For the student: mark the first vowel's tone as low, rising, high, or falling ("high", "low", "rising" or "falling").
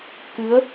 rising